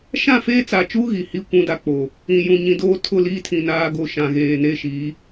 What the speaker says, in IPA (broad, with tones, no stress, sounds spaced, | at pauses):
ʃ ã˦˨ f eː˦ t͡s a˨ t͡ʃ uː˦ ɣ i˨ h i˦ kʷ ũ˦ d a˦ k͡p o˨ | ĩ˨ j ũ˨ ɲ ĩ˨ d oː˦ tʰ ʊ˦˨ l iː˦ tʰ ĩ˨ n aː˦ ɡ o˦ ʃ ã˨ ɣ eː˨ n e˦ ʃ i˨˦